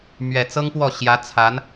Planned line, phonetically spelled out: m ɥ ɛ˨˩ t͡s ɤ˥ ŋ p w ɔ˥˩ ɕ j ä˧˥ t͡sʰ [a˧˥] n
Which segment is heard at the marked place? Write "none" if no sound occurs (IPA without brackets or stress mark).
a˧˥